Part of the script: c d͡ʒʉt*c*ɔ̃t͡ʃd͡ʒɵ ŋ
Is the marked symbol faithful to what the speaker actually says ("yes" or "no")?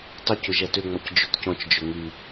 yes